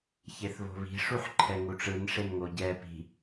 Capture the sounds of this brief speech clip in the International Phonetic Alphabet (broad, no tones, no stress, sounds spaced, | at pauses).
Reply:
ç e θ β o̤ β i̤ ʂ u ħ ǃʰ ɛ ŋ u ʈ͡ʂ ɯ n ʂ e n ŋ o ɟ ɛ p i̤